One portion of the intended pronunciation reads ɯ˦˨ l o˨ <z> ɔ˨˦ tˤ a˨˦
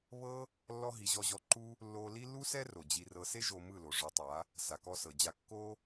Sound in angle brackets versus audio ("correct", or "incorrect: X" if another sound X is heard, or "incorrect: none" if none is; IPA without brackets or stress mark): incorrect: ʐ